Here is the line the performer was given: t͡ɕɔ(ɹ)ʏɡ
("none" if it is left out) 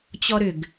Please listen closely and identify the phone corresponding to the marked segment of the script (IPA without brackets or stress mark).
ɾ